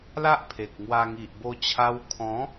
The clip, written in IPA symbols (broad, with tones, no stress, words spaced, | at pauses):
la˦ʔpʰe˨k̚ŋwa˧ ŋi˨ʔbo˧t͡ɕʰa˧w kʰɔ̃˨˦